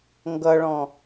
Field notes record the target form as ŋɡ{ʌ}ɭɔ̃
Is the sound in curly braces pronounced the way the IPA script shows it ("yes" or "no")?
yes